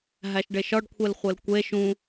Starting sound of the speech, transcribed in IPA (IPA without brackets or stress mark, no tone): ɦ